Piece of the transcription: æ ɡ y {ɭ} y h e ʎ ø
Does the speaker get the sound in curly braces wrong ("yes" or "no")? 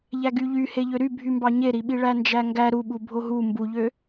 yes